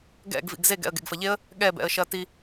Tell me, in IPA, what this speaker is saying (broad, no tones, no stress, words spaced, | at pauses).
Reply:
ɡɛ̰ɡvḭɡ zeɡɛ̰ə̯ ɡḛɡfɐʎeə̯ | ɠɛbɛ̰ə̯ ʃɐti